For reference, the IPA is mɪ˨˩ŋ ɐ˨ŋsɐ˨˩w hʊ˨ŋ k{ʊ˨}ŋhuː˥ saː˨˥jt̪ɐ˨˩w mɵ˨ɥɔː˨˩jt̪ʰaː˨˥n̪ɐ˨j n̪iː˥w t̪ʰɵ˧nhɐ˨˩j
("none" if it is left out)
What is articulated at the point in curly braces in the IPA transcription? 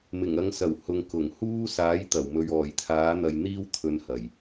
ʊ˨˩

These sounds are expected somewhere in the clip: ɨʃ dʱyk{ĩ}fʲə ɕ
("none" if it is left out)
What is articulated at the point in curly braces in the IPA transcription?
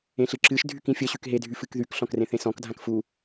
ĩ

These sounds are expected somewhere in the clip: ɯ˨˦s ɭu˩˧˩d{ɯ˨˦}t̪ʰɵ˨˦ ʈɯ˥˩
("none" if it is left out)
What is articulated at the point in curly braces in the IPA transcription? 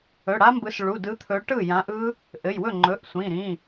ɯ˨˦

